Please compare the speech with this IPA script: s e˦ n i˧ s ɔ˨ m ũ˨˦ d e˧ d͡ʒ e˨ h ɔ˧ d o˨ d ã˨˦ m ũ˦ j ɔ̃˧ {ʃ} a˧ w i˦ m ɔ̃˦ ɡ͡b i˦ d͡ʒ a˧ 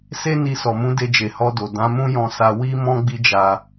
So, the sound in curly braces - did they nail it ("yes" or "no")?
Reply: no